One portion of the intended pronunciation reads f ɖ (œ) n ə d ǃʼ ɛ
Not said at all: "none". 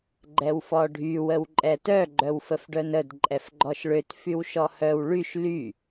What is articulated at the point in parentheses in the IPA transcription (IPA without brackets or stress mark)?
œ